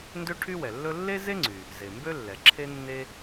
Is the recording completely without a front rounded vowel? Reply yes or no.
no